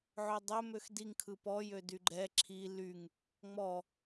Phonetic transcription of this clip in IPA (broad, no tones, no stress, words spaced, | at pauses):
ʕødˤɵ møxdiŋkʰɯ pɔjø dyɡ͡ǃɛ ǁʰi lyŋ | ŋ͡mɔ